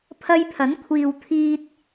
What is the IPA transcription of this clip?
pʰ ɐ˧ j pʰ ɐ˨˥ n kʷʰ iː˨ w t̪ʰ iː˧ t̚

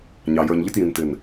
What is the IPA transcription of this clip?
ɲ ɑ˨ j ə˞˨ ɲ ʎ ɪ˦ t j ĩ˨ n t ɪ˨ n

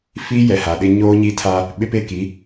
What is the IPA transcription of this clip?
f iː˦ j ɛ˨ h a˨ ɗ ɪ˦ ɲ oː˦ ɲ i˦ tʰ a˦ | ɓ ɪ˦ p e˦˨ k i˨˦

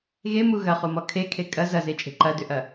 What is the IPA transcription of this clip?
ɣ e m u ɣ ɐ χ u m ɔ kʰ e kʰ e kʼ ɐ z ɐ z e t͡ʃʼ e̤ ǃ ɐ d ʏ ʔ ɐ

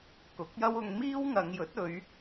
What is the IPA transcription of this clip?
k ʊ˨˥ k̚ j ɐ˥ w ʊ˧ ŋ m iː˥ w ŋ ɐ˨˧ ŋ j ɵ˨˥ t̚ ɵ˨˧ ɥ

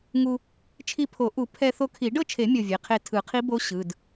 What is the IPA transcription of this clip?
ŋ u˧ | t͡ʃʰ i˧ pʰ o˨˩˦ ʔ u˨˩˦ pʰ ɛ˧ θ o˧ kʰ i˨˩˦ ɖ ɤ˥˨ t͡ʃʰ e˨˩˦ mʲ ɤ˧ vʲ e˩˧˩ qʰ e˥˨ tʰ ɯ˨˩˦ qʰ i˧˥ b o˧˥ ɕ ɯ˩˧˩ d

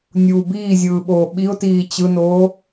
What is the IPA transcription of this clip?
nʲ uː b iː zʲ ɯː ɓ oː ɓ i ʊ̯ t iː t͡ɕ ɯ n oː

